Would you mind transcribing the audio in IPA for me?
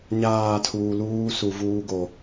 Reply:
ɲ aː˦˨ tʰ uː˨ l uː˦ s u˨ v uː˦ ɡ o˨

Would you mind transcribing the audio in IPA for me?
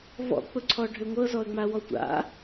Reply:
v ɔ̰ k͡p ʊ ǀʰ ɔ ɖʱ ʏ ŋʷ ɤ z ɔ ə̯ ŋ͡m a w ɔ tʷ a̰

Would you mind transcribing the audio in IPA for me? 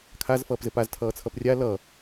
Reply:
kʰ a z f ʌː p z ɘ p a z tʰ ʌː t͡sʰ ʌ p rʲ a l ʌ

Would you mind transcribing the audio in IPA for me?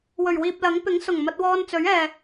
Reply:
w ɵ˨˩ ɥ w iː˨ p̚ l ɐ˨˥ ŋ p ɪ˨˥ ŋ s ʊ˨˩ ŋ m ɐ˧ t̚ w ɔː˧ n t͡s ɵ˨˥ ɥ ɛː˨

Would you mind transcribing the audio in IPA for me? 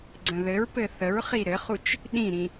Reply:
ɡ͡ǀ ə̃ ð ɘ ɹ p ɘ θ ə ɹ χ i ɾ ɘ χ u t͡ʃ | ɗ ĩ ɾ ĩ

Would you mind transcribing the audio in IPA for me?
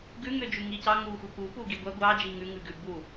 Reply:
ɡ ʉ ŋ ø d͡ʒ ʉ ŋ i c ɑ ŋ u xʷ e p u p u ɡ i ɡʷ æ ɡʷ ɑ d͡ʒ i ŋ ʉ ŋ ʉ ɡ ʉ b u

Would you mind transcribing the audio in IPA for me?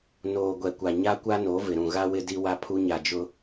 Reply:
n oː˨ ɡʷ ɛ˨ kʷ a˨ ɲ a˦ kʷ a˦ n o˨˦ v ɪ˨ ɾ ũ˨ ɣ a˦ w ɪ˦ d i˦ w a˦ pʰ u˦ ɲ a˨ d͡ʒ ʊ˦

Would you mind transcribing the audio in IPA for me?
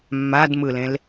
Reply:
mː a d m ɯ l ẽ l

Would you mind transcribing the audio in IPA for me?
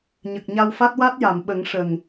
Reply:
ɲ ə˨˩ k̚ ɲ a˧ w f a˦˥ t̚ w a˦˥ t̚ j a˨˩˨ m ɓ ə˨˩˦ ŋ ʂ ə˨˩ ŋ

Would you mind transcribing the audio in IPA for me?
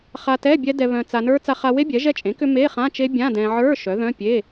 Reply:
χ a˧ t ɛ˧˥˧ bʲ ɛ˦˥ d ɛ˧ β œ̃˧ t͡s a˧ n ə˞˦˥ t͡s a˧ χ a˧ w e˦˥ bʲ ɛ˩˥ ʒ ɛ˧ t͡ʃʼ ẽ˩˥ k ʏ˧ m e˧˥˧ χ ã˧˥˧ t͡ʃ e˦˥ bʲ ã˧˥˧ d ɛ̃˧ ʕ ə˞˧˥˧ ʃ œ˩˥ ð œ̃˧˥˧ pʲ e˧˥˧

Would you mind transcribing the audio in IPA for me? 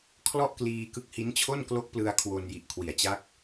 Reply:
kʰ l ɔ˥˩ ʔ k l iː˧ k ɯ˦˥ k̚ h i˦˥ n t͡ɕʰ o˥˩ n k l o˦˥ k̚ p l ɯ˧ a̯ kʰ w o˧ n j i˨˩ ʔ kʰ w i˨˩ a̯ t͡ɕ a˦˥ k̚

